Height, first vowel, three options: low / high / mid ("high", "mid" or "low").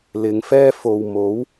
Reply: high